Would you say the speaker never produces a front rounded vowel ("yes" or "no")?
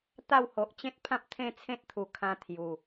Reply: yes